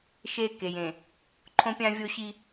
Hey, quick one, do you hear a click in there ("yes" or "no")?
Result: yes